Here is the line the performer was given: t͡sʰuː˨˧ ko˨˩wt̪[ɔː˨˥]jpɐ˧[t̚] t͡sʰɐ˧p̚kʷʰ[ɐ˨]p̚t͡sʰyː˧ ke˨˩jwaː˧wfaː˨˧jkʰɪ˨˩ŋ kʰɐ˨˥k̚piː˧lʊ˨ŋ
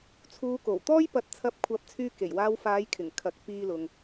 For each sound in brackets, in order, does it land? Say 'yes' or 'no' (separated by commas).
no, yes, no